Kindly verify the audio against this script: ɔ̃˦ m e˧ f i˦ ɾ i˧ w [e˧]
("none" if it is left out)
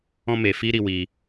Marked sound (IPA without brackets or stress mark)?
i˧